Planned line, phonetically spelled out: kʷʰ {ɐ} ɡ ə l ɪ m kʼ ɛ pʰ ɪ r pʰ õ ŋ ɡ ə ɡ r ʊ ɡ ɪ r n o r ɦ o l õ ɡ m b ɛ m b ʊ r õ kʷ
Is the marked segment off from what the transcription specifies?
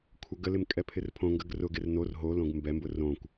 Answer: no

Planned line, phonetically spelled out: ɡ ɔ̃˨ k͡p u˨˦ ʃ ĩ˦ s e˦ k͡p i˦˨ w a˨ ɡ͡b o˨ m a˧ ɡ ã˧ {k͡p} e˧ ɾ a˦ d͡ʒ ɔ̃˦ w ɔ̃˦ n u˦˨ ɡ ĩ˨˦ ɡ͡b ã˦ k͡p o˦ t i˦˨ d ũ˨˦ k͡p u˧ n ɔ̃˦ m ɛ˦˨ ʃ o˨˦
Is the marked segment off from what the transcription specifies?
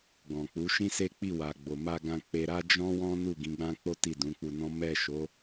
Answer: no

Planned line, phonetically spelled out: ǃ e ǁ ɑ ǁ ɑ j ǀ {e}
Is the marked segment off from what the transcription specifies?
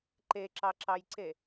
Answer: no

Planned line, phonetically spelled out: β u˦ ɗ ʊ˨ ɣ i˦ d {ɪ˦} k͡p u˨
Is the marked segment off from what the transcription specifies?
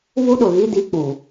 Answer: yes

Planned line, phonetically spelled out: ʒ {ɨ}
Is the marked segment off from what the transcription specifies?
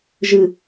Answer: no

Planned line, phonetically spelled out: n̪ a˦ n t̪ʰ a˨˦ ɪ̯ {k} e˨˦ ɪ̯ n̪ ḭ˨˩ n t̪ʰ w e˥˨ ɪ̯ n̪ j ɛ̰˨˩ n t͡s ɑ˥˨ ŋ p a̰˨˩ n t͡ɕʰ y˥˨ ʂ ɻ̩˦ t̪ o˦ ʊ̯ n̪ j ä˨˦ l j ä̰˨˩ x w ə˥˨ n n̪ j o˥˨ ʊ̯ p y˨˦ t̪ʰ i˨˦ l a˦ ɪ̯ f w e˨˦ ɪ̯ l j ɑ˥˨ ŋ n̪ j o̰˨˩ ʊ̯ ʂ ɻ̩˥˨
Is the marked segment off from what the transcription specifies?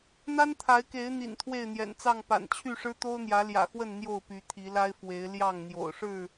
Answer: no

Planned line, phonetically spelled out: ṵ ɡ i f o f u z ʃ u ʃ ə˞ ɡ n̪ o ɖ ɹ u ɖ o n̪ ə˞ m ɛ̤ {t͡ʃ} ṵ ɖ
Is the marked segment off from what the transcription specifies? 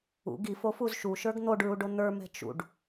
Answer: no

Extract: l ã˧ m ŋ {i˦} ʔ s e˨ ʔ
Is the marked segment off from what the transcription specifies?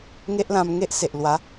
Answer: yes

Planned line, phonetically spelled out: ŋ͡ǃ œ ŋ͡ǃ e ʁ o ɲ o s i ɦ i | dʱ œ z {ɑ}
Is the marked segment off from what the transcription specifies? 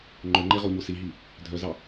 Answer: no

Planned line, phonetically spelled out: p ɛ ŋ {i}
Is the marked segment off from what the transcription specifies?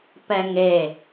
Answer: yes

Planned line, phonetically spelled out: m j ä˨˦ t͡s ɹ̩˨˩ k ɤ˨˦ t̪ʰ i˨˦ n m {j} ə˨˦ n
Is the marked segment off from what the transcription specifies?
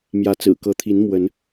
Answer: yes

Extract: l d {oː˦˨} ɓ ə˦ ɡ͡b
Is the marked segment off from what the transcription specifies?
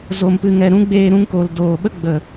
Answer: yes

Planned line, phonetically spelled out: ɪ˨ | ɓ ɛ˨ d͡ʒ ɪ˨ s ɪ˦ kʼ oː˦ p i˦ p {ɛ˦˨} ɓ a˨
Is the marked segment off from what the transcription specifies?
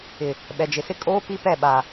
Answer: no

